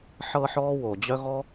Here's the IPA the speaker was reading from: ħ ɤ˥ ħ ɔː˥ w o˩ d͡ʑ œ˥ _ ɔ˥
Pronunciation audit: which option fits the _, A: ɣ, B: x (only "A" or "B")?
A